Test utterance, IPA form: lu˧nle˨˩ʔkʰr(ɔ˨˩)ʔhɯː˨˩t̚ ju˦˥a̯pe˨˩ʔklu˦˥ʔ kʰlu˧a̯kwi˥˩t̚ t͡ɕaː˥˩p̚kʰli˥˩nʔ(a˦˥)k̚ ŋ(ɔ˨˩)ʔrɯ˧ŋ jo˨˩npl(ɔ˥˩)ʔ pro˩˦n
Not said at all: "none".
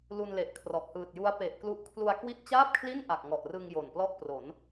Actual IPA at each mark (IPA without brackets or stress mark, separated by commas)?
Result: ɔ˨˩, a˨˩, ɔ˨˩, ɔ˥˩